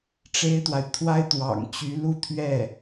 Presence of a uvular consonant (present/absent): absent